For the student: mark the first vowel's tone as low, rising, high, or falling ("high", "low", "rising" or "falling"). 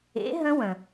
rising